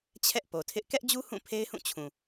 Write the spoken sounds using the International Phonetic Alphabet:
t͡ɕʰ ɛ˦ ʔ p o˨ tʰ ɪ˦ ʔ k ɛ˦ ʔ d͡ʑ u˦ h ũ˦˨ pʰ e˦ ɪ̯ h ũ˦˨ t͡ɕʰ ũ˨

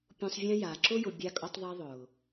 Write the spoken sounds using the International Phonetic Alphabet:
pʲ ũ˨ sˤ vʲ ã˦ j a˨ ǁ ʊ˦ j ʊ˨ bʲ a˦ kʼ ʊ˦ tˤ ðˤ i˦ ðˤ ʊː˨

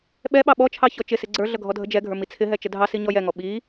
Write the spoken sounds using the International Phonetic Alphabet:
ɓ ɛ ɓ ɑ ɓ ɔ t͡ʃʰ ɑ ç ɔ t͡ʃ ɪ s ɪ ɡ͡ǀ ə˞ ɮ ʌ ɡʱ ɔ dʱ ə d͡ʒ ɛ ɡʱ ə˞ m i t͡sʰ ɪ ɦ ɛ t͡ʃ ə dʱ ɑ s i ɲ ɔ j ɛ ŋ ɔ ɓ i

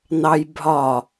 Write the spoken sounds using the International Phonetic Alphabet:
n ɑ j bʱ ɒ

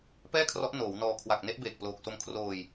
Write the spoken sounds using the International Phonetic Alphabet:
p ɛː˥˩ kʰ r ɔ˦˥ ʔ n oː˩˦ w n ɔː˧ kʰ w a˨˩ k̚ n e˥˩ ʔ b eː˨˩ k̚ p l oː˨˩ k̚ s o˧ m kʰ r oː˧ j

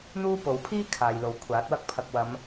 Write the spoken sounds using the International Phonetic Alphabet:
n̪ uː˥ p o˨˧ w pʰ iː˥ kʰ aː˨ j l o˨ w kʷʰ aː˨˥ t̚ w ɐ˥ k̚ pʰ ɐ˨ k̚ w ɐ˨˧ m

